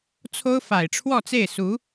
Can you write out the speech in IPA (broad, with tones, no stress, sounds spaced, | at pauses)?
t͡sʰ o˥ ʊ̯ f a˨˩ ɪ̯ ʈ͡ʂʰ w ɔ˥˧ t͡s e˥˩ ɪ̯ s u˧˥